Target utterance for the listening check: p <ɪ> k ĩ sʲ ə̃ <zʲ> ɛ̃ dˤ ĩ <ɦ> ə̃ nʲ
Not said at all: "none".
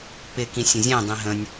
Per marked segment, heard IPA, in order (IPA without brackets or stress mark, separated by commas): ɪ, zʲ, ɦ